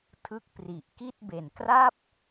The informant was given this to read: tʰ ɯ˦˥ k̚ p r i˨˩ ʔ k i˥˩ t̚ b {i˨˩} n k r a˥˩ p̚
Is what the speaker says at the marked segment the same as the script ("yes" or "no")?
no